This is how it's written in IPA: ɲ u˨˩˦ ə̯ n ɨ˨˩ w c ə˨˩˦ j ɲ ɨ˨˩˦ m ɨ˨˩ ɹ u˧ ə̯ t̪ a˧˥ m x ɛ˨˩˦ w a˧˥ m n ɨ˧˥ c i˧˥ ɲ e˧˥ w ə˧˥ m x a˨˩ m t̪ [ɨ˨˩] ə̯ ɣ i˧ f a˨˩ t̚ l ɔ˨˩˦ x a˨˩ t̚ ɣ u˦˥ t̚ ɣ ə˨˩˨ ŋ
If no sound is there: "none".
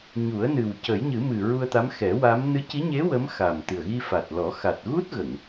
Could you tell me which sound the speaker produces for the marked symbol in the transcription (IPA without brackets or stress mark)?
ɨ˨˩